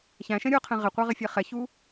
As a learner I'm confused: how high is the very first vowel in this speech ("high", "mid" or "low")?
low